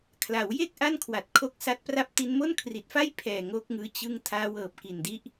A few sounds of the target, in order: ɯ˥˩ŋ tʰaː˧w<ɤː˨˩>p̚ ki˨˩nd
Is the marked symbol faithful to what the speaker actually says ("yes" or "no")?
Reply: yes